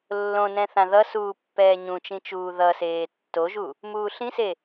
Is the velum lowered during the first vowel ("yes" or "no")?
yes